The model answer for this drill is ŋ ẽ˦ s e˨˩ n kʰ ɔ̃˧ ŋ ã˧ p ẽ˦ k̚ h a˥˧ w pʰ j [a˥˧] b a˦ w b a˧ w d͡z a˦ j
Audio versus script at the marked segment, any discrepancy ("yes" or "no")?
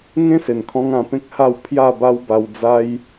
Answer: no